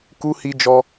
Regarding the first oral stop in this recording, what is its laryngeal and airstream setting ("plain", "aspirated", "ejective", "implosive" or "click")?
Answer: plain